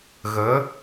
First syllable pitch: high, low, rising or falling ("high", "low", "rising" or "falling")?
rising